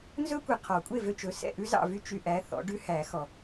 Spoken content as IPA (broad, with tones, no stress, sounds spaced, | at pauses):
n z ɵ˥ kʷ ɛ˨ qʰ ɔ˨˩˦ kʷʼ e˥˨ v ø˥˨ t͡ʃ ɵ˨˦ s ɛ̰˥˨ ʔ ʉ˥ z ɑ̰˥˨ v y˥ t͡ʃ y˨ ʔ æ˨˦ θ ɔ̰˨˦ ɖ ʉ˥ h æ˨˩˦ x ɔ˨